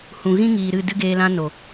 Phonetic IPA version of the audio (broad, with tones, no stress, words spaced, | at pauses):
hũ˨ɣĩ˦ŋiː˨ ɾɨ˦˨dɨ˦ɡeː˧ lã˦no˨